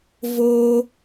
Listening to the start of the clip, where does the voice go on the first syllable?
low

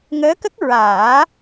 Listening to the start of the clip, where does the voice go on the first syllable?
rising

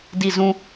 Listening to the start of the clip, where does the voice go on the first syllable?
falling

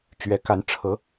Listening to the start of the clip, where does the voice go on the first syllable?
rising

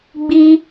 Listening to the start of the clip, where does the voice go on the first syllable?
high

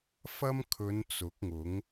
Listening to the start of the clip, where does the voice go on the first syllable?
high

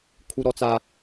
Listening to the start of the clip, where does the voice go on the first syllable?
high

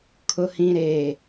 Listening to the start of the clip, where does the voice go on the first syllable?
low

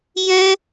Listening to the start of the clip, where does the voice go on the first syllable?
high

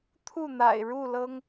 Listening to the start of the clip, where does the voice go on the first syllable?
falling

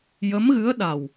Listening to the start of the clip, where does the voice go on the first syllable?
rising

